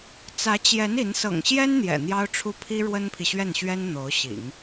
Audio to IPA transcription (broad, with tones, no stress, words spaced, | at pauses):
t͡sä˧˥t͡ɕjɛ˧˥n i˧˥n sɤ̰˨˩ŋɕjɛ˥n n̪jɛ̰˨˩n̪jɑ˥ʊ̯ʈ͡ʂʰu˥ pʰi˥ ɻwə˥npʰi˨ɕɥɛ˥˩nɕɥɛ˥n n̪o˧˥ʊ̯ɕḭ˨˩˦ŋ